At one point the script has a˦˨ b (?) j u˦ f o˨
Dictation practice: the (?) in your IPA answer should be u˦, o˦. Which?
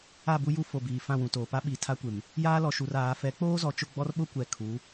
u˦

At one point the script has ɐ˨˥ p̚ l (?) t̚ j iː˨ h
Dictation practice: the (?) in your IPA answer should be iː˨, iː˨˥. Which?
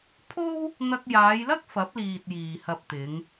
iː˨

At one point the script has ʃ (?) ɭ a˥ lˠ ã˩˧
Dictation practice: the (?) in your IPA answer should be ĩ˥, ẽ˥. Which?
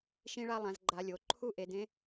ĩ˥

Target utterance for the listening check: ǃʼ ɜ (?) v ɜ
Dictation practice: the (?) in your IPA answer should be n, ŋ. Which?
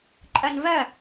n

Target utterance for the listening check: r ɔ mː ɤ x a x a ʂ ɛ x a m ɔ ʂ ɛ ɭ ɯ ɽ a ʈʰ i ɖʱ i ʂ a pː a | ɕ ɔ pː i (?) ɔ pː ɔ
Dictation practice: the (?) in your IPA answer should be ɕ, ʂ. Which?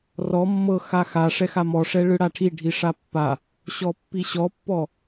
ɕ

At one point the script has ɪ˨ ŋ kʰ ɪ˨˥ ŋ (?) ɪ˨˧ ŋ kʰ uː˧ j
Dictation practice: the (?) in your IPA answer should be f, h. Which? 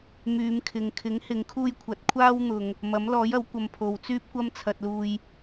h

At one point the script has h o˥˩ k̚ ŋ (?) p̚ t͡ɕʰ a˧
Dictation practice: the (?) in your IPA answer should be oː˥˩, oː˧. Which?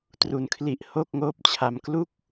oː˥˩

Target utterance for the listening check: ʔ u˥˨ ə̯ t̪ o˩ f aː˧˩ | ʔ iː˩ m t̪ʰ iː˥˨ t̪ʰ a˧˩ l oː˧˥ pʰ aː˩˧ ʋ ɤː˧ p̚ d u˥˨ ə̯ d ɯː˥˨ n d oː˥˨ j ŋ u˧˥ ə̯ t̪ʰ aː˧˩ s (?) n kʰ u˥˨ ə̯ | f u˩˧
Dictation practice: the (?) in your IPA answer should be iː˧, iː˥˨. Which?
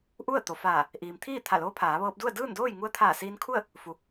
iː˧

